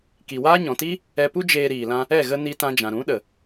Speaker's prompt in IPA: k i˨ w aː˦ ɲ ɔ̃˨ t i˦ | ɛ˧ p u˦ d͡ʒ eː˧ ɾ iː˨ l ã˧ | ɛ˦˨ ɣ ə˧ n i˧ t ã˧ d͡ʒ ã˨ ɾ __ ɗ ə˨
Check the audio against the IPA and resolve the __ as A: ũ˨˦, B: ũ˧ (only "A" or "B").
A